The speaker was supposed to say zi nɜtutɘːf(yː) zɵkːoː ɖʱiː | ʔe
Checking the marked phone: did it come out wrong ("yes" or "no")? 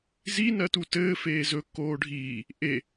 yes